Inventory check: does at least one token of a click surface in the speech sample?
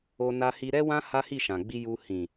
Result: no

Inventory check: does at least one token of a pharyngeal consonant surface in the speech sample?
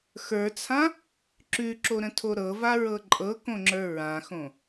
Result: no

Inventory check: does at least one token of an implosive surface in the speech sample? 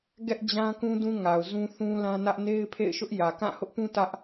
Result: no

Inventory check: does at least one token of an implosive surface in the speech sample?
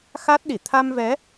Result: yes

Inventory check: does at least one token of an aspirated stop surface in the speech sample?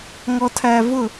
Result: yes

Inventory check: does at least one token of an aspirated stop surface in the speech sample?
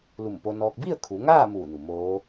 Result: yes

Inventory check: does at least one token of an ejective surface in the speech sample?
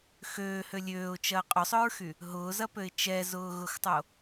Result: yes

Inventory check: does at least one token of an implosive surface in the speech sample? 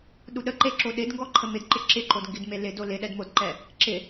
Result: yes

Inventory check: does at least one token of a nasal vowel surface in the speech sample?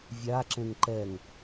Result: yes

